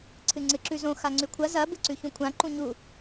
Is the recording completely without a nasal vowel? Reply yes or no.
no